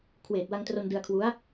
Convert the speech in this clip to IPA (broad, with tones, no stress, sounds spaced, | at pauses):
kʰ w eː˨˩ t̚ w a˧ ŋ t r o˧ n d ɯ˧ a̯ kʰ w u˦˥ a̯